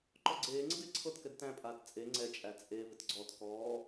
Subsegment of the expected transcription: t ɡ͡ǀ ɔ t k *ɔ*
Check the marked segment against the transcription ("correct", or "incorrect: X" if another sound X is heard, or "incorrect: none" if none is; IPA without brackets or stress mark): incorrect: ɔː